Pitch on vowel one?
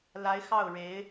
rising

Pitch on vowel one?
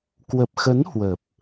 low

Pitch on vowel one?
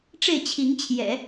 falling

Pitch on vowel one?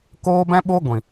high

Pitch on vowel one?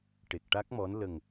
low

